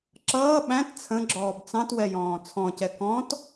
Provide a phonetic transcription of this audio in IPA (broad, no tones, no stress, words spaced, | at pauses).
ǁʌː ɓæ̃t t͡sʰə̃ɡ͡ǁɔːb t͡sɑ̃twɛjɔ̃ː t͡sʰɔ̃cɛ kɔ̃t